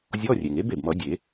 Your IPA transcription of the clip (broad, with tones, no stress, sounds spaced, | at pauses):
zʲ ɔ˧˥˧ rʲ e˩ ŋ e˧˥ b e˩ b m ʌ˨˩˦ dʲ e˨˩˦